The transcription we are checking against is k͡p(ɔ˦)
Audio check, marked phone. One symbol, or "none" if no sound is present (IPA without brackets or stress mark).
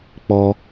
ɔ˦